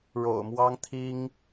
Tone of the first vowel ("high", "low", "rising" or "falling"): low